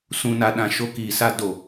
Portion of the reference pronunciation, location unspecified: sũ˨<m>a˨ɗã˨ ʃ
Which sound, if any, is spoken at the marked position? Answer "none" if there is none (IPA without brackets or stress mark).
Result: n